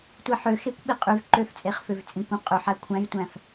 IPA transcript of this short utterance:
tʷ i ħ ø x e kʷ ɓ i qʼ y v ǃ ø f t͡sʼ e χ f ø v t͡sʼ ĩ kʷ æ̃ qʼ ʉ ħ æ kʷʰ æ̃ j tʷ æ̃ f

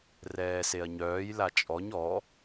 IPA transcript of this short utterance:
r ɛː s e ɐ̯ ɲ œː j l a t͡ʃʼ ɔ ɲ ɔ

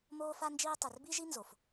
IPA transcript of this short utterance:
m oː˦ f a˦ n d͡ʒ iː˦ tˤ ɘ˨ r b i˦ ʒ i˦ n z o˨ f

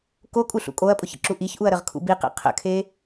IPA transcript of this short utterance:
k o kʼ u ɬ ṵ kʼ o ɐ̯ pʼ ʊ ç ə̰ ǁ u ʔ i ç ʔ u ɐ̯ ɾ ə ʁ kʰ ṵ b i q ḭ qʰ ə̰ kʰ e

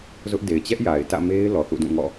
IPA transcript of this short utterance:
z ʊ˦ ʔ d e˨ ɪ̯ t͡ɕ ɛ˦ ʔ j a˨ ɪ̯ t ä̰˦˨ m e˦ ɪ̯ l ɔ˨ θ ṵ˦˨ d ũ˦˨ ŋ ɔ̰˦˨

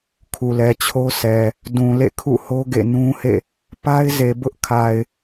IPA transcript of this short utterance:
kʰ u˨ l ɛ˨ t͡ɕʰ o˦ sʰ ɛ˨ | d ũ˨ l ḛ˦˨ kʰ ṵ˦˨ h o˦ ɡ ḛ˦˨ n ũ˦ h ḛ˦˨ | p a˦ ɪ̯ z e˨ b ʊ˦ ʔ kʰ a˨ ɪ̯

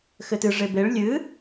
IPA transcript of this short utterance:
x ɘ t ɨ ʐ e b e ɭ lʲ ɨ

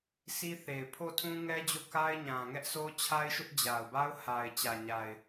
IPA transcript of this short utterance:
s i˦ θ e˨ ɪ̯ pʰ o˦˨ tʰ ũ˦ ŋ ɛ˦ d͡ʑ o˦˨ k a˦ ɪ̯ ɲ ã˨ ŋ ɛ˦ ʔ s o˦ t͡ɕʰ a˦ ɪ̯ ʃ ʊ˦ ʔ d͡ʑ a˨ ʊ̯ b a˦ ʊ̯ h a˨ ɪ̯ t͡ɕ ä˨ ɲ a˨ ɪ̯

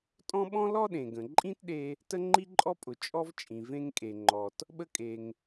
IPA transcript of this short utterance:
tʼ ɔ̃˥ ɓ ɔ̃˥ l ɔ˥ ɗ ẽ˩ ɡ ə̃˩ ǃʼ ĩ˥ t ɗ e˥ | t ə˥ ŋ͡ǃ i˥ ǃʼ ɔ˥ pʼ ʊ˩ t͡ʃʼ ɔ˥ v t͡ʃʼ ĩ˩ v ẽ˥ ŋ kʼ e˩ ŋ͡ǃ ɔ˩ t | ɓ ə˥ kʼ e˩ ŋ

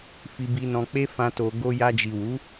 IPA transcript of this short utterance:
f i˧ b i˧ n ɔ̃˧ k͡p e˦ f ã˧ t o˨ ɡ o˧ j a˧ d͡ʒ i˨ w u˨˦

